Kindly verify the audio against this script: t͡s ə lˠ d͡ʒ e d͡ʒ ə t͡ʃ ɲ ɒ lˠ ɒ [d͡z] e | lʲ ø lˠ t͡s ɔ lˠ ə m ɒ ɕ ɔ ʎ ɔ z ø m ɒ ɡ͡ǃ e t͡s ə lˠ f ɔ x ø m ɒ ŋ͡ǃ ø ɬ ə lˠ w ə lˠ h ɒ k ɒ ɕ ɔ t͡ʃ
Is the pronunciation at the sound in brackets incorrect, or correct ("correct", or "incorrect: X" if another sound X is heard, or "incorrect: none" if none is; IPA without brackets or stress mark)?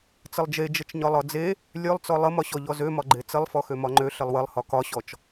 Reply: correct